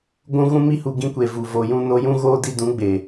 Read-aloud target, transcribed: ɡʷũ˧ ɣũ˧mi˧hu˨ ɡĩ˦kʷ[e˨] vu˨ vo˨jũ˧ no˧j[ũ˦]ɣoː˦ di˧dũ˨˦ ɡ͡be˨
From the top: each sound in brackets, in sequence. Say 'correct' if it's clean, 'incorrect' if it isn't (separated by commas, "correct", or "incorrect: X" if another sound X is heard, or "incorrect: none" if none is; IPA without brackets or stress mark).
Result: correct, correct